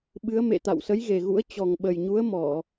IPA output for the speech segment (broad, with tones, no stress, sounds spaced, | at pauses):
ɓ ɨ˨˦ ə̯ m ḛ˧˨ t̪ a̰˧˨ w s ə˨˦ j ɣ e˨˩ ɣ ṵ˧˥ ə̯ t͡ɕ ɔ˨˩ ŋ ɓ ə˨˩ j ɲ u˨˦ ə̯ m ɔ˧˩˨